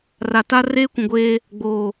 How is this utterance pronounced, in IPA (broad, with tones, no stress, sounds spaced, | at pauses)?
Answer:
r a˨ t a˦ r eː˦ kʷ ũ˨ ɡʷ eː˦ | ɡ͡b oː˨